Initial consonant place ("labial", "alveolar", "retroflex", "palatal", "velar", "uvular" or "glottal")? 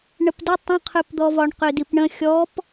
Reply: retroflex